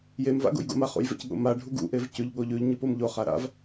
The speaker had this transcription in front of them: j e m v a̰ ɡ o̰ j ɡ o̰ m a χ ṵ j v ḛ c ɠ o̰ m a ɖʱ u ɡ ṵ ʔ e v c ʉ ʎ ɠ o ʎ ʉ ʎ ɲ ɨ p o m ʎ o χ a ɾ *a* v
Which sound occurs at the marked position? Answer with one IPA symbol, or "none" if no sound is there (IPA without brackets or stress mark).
a̰